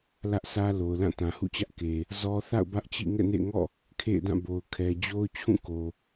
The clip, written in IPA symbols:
lä˦ʔsʰä˦lo˨ʊ̯ lã˦˨tã˨hṵ˦˨t͡ɕä˦ʔ ke˨ | zɔ˦ θa̰˦˨ʊ̯ bä˦ʔt͡ɕḭ˦˨ ŋɛ̰˦˨nḛ˦˨ɪ̯ŋɔ̰˦˨ | kʰḛ˦˨ɪ̯dã˦˨ bo˨ʊ̯kʰɛ˨ d͡ʑo˦ʊ̯t͡ɕʰũ˦˨ko˨

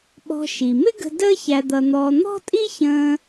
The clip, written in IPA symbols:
ɓɔ̤˧ ʃi˩ mɪ˥ɡə̤˧ dəː˥ çæ˧d̪ʌ˧n̪ɔː˧ n̪ɔ̤˥tʼi˥çə̃ː˧

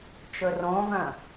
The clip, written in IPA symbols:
t͡ʃɵrõvœ̃

